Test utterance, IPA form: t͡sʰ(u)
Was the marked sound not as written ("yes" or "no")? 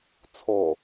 yes